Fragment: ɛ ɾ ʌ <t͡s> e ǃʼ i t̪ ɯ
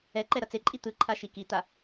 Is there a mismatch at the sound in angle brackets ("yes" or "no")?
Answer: no